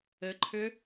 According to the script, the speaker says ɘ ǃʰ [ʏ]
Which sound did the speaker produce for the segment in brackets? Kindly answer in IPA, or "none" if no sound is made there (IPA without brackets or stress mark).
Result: ʏ